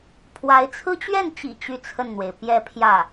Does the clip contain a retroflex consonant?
no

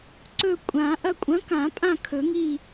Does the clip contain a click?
yes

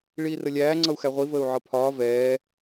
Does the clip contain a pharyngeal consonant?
yes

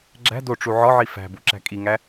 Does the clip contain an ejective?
yes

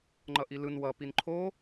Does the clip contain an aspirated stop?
yes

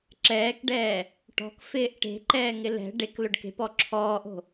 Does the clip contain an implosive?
no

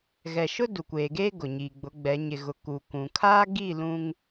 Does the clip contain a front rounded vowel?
no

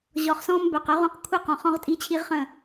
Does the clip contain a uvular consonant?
yes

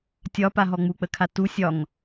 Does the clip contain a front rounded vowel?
no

